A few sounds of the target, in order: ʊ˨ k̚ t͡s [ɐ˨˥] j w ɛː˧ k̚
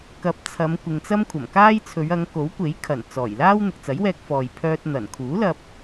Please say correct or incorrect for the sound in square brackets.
correct